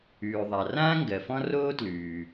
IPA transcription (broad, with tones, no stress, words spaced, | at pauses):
ʉː˩ðˤa˩rãː˥ ŋɡɜ˩fɔ̃˥roː˥ tlʉː˩